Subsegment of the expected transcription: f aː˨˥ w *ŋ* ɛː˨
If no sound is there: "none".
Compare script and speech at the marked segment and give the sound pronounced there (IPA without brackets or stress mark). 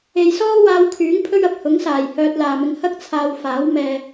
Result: m